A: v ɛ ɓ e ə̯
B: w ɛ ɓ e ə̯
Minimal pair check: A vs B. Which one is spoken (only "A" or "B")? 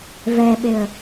A